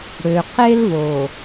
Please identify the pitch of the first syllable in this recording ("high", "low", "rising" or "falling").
low